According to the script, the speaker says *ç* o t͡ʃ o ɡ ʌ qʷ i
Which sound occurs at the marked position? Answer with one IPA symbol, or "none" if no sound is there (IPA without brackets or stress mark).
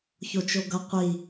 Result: ç